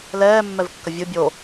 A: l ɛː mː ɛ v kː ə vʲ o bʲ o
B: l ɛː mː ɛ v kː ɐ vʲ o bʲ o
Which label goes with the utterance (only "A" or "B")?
B